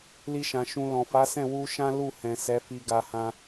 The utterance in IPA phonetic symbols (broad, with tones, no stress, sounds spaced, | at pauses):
l i˧ ʃ ã˨ ʃ ũ˧ l ɔ̃˨ f a˨˦ s ɛ̃˦˨ w u˧ ʃ ã˦ l u˦˨ h ɛ̃˨ s ɛ˨˦ f i˧ ɡ a˧ h ã˦